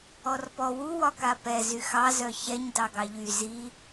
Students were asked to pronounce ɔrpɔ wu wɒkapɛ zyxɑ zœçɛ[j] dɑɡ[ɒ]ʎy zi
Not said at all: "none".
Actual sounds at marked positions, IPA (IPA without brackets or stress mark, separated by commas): ɲ, ɑ